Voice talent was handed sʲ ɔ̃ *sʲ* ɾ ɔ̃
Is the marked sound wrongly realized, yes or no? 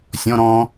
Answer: yes